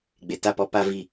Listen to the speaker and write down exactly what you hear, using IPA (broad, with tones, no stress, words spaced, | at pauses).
ɡ͡be˨ta˦˨pɔ˦ pa˦vi˦˨